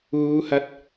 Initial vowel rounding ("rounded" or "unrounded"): rounded